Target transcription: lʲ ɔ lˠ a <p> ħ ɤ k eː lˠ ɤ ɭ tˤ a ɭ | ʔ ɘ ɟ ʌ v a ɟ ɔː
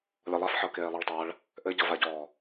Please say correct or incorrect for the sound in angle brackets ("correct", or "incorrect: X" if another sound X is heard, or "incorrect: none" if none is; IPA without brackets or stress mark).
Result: incorrect: f